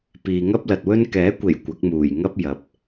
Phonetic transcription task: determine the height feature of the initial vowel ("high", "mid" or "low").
high